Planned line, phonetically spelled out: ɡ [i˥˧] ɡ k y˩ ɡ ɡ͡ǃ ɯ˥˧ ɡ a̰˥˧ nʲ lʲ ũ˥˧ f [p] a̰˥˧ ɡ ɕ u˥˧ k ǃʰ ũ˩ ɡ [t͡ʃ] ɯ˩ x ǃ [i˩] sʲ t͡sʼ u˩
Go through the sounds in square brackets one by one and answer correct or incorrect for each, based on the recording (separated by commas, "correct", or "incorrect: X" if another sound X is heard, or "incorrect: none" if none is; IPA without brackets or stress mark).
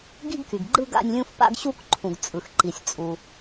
correct, correct, incorrect: t͡sʼ, correct